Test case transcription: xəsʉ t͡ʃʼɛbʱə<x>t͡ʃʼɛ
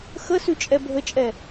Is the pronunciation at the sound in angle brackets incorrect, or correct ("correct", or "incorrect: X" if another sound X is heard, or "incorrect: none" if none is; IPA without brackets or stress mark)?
incorrect: none